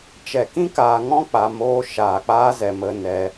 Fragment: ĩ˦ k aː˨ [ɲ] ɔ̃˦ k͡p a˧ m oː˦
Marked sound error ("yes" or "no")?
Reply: yes